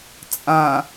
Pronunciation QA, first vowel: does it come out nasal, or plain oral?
nasal